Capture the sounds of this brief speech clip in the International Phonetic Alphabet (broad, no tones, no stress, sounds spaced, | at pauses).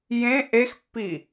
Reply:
j ẽ ʔ e x pː i